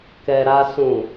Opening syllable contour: low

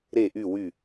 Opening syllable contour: falling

